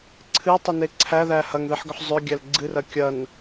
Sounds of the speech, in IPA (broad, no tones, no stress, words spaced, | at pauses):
ǀʰɨtˤɨne ǀʰæðæ hɐŋðeħɡʏħ zˤʏɡʲæl ɡ͡ǀɨrɐ kʲɐn